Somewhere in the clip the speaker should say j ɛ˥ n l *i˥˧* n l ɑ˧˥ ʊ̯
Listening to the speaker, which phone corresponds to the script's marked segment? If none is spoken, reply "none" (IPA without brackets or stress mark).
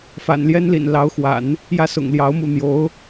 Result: ḭ˨˩